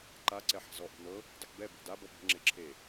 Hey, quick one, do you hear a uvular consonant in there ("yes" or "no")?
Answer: no